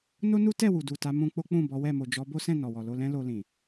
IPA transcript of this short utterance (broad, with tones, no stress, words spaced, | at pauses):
no˦nu˦tɛ˦˨ wu˨du˨ta˨˦mũ˧ k͡po˦k͡pũ˦˨ bɔ˨˦wɛ˦˨ mo˨d͡ʒɔ˨˦ bo˦sɛ̃˦˨ nɔ˨wɔ˨ lo˧lɛ̃˦ lo˧lĩ˨